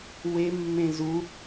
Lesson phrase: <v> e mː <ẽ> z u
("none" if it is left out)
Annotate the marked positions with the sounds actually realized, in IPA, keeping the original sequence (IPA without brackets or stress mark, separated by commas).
w, ẽ